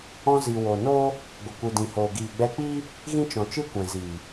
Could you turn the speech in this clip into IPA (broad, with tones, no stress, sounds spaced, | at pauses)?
ɔ̃˧ z i˨ w o˨ n oː˦ | ɡʷ ə˨ kʷ ɨ˨ d ĩ˨ h oː˨ ɡ iː˨ ɡ͡b ɛ˧ k͡p iː˦ | ɣ ĩ˦ t͡ʃ ɔ̃˨ t͡ʃ ɨ˦ kʷ ɛ̃˨ z iː˨